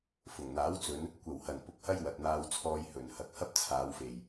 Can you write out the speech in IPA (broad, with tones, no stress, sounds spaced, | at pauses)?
f ʊ˨˩ ŋ n̪ aː˨˥ w t͡s ɵ˨˧ n | kʷ ɐ˨˩ w h ɐ˨˩ n p ʊ˨ k̚ h ɐ˥ j w ɐ˨ t̚ n̪ aː˧ w t͡sʰ ɔː˧ j h ɵ˨˩ n h ɐ˨ k̚ h ɐ˥ p̚ t͡sʰ aː˨˧ w f e˨˩ j